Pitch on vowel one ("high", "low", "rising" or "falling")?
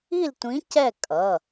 falling